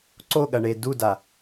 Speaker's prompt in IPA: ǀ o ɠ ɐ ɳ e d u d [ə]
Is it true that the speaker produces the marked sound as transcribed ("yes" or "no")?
no